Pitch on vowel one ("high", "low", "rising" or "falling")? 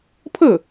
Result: falling